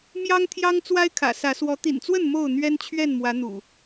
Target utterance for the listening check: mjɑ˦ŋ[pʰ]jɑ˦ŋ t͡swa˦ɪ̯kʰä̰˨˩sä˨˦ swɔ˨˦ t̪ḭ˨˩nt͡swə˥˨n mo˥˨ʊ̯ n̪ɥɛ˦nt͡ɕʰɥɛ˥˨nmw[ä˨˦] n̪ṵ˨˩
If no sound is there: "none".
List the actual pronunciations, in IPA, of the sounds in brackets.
t̪ʰ, ä˨˦

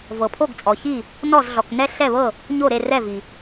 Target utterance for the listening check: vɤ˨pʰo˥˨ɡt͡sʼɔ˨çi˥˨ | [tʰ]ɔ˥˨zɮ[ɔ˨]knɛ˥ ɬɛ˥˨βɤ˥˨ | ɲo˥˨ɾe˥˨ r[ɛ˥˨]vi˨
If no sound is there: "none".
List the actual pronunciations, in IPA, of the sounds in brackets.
n, ɔ˨, ɛ˥˨

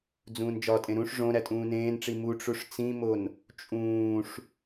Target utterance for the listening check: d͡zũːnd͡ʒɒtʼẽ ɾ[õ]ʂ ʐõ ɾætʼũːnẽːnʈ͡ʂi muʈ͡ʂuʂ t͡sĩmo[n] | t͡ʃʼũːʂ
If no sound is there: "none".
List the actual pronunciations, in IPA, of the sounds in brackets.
ũ, n

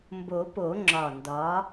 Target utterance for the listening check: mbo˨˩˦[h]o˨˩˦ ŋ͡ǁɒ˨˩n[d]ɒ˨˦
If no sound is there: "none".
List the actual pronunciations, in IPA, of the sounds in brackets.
p, d

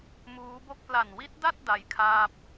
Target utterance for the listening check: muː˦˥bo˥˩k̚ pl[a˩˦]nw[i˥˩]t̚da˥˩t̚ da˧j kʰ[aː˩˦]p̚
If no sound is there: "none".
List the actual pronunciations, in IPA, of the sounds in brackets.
a˨˩, i˦˥, aː˥˩

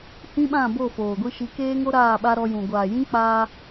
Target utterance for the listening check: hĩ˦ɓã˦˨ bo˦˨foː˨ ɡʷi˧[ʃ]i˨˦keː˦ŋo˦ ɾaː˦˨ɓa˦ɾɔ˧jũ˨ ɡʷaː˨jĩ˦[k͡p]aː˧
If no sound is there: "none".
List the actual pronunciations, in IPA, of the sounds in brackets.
ʃ, k͡p

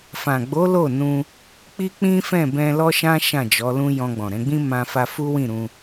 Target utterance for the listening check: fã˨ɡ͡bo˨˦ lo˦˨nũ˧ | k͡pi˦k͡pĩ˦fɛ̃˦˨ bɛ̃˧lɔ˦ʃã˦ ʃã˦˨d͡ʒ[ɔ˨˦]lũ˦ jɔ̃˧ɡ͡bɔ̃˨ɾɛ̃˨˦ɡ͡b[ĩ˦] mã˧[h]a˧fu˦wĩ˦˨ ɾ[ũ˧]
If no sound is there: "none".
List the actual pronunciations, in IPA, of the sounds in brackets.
ɔ˨˦, ĩ˦, f, ũ˧

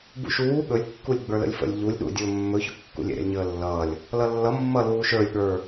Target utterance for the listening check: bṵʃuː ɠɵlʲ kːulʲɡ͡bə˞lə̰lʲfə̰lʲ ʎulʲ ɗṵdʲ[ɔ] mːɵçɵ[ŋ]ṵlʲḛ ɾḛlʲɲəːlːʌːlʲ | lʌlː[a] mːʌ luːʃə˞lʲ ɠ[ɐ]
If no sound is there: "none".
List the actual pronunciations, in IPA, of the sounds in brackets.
ɵ, kː, ʌ, ə˞

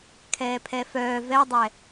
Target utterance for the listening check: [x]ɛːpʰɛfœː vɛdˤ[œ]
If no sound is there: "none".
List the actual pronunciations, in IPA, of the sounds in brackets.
kʰ, ɛ

